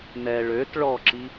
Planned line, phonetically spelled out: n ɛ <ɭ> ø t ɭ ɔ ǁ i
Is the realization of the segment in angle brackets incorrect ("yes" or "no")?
no